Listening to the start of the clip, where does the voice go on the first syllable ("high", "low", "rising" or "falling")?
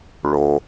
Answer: low